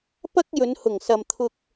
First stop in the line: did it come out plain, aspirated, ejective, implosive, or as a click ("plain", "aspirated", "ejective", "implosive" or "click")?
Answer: plain